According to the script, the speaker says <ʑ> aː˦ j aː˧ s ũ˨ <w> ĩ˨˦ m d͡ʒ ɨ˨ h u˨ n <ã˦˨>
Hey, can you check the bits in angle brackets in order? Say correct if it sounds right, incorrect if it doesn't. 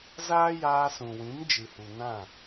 incorrect: z, correct, correct

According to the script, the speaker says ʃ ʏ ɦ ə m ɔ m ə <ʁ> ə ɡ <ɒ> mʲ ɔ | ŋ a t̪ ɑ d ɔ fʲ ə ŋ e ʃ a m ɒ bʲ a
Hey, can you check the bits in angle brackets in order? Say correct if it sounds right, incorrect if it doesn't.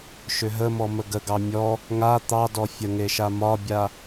incorrect: ɡ, incorrect: ɑ

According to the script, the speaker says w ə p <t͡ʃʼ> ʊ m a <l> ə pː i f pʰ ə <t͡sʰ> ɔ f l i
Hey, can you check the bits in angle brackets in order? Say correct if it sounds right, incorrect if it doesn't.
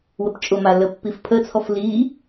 correct, correct, correct

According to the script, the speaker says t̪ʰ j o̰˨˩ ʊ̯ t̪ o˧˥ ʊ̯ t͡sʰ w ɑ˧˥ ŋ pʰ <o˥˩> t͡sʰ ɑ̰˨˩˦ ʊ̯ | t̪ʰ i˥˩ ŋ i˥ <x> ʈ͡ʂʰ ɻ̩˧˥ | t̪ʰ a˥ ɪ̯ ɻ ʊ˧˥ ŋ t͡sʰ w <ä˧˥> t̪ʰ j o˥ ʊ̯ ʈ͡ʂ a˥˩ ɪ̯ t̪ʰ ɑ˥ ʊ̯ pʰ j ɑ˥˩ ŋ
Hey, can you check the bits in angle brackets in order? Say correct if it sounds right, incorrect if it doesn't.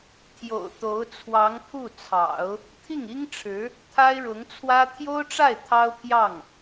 incorrect: u˥˩, incorrect: ŋ, incorrect: ä˥

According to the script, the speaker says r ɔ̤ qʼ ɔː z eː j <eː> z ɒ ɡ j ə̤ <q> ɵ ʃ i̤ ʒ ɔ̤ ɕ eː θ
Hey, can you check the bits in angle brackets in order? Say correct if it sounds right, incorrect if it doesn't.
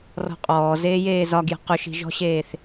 correct, correct

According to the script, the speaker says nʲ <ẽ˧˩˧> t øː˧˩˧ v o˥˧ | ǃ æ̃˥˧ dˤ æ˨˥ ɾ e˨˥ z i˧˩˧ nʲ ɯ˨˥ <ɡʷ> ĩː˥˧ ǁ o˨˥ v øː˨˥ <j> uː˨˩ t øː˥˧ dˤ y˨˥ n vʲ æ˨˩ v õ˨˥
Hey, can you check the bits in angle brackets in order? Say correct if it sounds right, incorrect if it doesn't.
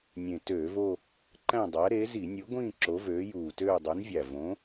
incorrect: ẽ˨˩, correct, correct

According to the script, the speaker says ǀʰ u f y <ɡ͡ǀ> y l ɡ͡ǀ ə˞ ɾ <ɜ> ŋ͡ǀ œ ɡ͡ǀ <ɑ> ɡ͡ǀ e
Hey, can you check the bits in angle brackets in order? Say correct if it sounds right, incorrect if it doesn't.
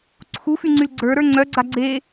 incorrect: ŋ͡ǀ, incorrect: ə˞, incorrect: a

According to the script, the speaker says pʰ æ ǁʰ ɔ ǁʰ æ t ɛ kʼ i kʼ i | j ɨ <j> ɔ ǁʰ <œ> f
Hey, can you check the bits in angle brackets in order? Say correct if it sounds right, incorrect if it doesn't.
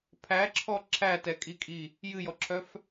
correct, correct

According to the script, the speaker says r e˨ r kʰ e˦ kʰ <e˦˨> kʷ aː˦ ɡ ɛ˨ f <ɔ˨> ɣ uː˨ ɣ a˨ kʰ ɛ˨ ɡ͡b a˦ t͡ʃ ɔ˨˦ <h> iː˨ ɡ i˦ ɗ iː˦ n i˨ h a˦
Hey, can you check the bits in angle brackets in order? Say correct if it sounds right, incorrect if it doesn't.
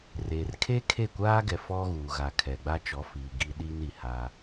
correct, incorrect: ɔ˦, incorrect: f

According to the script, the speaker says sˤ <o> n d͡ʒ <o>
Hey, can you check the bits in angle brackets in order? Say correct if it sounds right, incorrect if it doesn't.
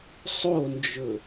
correct, incorrect: ɵ

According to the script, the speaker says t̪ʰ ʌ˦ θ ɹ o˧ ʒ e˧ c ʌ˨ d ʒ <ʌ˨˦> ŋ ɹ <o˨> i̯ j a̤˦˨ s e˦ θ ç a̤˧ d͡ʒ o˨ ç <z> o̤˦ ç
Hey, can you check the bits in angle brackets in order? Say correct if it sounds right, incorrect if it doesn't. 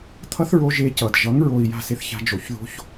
correct, correct, incorrect: ð

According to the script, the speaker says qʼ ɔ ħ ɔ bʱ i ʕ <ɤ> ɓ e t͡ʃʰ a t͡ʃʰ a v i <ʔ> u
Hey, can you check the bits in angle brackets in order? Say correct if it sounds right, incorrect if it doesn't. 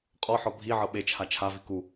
correct, incorrect: k

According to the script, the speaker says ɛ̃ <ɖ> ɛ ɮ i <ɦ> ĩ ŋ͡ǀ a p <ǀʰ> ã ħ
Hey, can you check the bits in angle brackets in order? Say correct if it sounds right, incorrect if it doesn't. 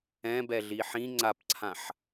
incorrect: b, incorrect: ħ, correct

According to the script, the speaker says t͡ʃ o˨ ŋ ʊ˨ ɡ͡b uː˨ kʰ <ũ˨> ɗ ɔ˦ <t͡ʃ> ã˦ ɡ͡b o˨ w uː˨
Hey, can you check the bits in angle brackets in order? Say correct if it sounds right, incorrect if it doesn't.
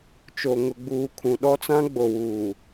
correct, incorrect: t͡s

